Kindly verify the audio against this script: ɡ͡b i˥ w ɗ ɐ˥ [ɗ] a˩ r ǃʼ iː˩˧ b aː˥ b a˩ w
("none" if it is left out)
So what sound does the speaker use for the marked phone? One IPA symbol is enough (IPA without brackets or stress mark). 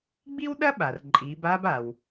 ɓ